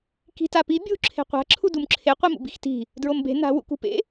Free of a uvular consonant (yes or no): no